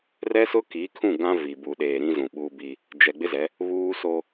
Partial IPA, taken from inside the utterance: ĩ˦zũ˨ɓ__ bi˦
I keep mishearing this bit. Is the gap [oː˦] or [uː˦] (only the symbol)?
uː˦